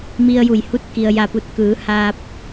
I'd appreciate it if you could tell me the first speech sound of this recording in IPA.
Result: m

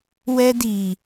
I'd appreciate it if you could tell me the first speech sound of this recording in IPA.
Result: w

